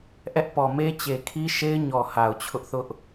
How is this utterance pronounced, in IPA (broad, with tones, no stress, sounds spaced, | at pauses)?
ʔ ɛ˦ ʔ p ɔ˨ m e˦ t͡ɕ e˨ kʰ i˦ ʃ e˦ ɪ̯ ɲ ɔ˨ h a˨ ʊ̯ t͡ɕʰ ʊ˦ ʔ θ ʊ˦ ʔ